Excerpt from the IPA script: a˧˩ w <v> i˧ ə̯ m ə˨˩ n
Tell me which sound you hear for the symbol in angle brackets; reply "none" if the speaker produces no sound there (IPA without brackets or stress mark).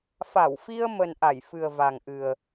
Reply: f